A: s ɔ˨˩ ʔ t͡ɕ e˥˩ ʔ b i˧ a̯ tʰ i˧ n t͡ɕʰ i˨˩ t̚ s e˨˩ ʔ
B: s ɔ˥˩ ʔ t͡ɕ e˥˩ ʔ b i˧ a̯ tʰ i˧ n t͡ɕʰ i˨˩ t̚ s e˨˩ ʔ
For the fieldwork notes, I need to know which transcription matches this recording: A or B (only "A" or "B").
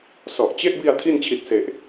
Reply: A